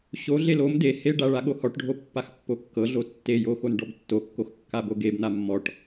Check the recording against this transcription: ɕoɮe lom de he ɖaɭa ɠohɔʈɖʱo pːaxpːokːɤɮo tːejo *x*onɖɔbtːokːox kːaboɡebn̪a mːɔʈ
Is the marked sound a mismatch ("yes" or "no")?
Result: no